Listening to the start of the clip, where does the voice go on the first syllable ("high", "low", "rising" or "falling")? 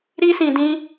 high